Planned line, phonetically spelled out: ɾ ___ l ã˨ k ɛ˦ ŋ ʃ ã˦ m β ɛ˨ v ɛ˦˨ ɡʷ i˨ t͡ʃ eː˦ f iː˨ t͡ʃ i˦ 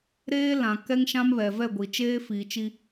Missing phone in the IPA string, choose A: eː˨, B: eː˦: B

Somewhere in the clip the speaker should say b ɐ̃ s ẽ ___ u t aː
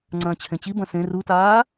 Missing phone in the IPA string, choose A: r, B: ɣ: A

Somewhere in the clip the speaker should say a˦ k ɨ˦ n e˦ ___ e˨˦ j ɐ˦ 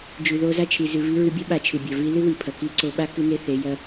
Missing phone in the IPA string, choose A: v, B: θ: B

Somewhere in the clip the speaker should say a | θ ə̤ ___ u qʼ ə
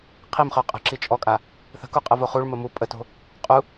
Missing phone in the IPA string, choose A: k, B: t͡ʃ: A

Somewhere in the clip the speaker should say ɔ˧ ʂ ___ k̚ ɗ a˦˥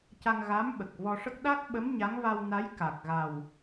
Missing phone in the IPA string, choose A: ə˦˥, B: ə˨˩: A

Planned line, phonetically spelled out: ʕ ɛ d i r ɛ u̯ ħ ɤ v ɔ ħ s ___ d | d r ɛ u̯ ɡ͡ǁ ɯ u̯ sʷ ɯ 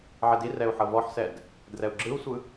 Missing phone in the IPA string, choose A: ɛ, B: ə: A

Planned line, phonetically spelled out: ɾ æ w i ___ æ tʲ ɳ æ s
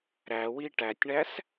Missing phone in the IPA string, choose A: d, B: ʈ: B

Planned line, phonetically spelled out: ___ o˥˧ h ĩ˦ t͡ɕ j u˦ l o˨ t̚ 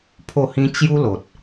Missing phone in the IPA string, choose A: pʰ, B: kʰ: A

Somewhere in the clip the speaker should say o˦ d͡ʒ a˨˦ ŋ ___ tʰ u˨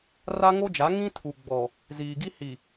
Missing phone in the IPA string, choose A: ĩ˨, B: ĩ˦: B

